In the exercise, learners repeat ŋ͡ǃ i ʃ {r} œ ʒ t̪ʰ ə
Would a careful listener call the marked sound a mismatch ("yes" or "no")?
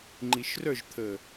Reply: no